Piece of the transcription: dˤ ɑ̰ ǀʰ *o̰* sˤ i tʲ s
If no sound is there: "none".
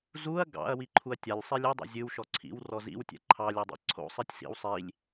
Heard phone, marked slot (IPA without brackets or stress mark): o̰